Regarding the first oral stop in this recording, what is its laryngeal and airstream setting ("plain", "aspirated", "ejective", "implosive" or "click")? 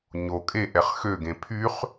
ejective